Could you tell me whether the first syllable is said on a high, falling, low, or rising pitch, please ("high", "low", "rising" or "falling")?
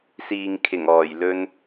low